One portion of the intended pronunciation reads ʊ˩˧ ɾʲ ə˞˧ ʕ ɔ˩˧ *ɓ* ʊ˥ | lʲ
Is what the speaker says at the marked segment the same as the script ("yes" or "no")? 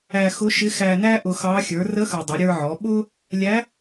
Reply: yes